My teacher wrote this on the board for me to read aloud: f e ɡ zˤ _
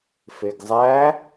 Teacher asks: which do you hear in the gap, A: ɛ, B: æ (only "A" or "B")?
B